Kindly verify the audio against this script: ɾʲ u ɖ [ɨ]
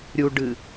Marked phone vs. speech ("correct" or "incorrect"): correct